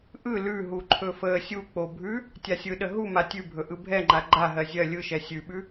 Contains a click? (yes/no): yes